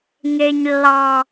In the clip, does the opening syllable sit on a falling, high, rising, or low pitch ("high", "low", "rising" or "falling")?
low